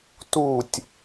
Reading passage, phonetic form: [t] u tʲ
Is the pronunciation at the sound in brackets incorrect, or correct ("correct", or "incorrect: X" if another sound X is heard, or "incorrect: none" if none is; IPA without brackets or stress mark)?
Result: correct